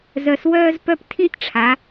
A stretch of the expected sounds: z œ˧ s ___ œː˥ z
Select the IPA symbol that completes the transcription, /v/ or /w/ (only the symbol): w